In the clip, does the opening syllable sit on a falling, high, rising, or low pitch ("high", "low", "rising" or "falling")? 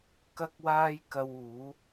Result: high